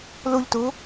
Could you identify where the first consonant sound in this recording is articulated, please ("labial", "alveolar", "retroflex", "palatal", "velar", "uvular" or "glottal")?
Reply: alveolar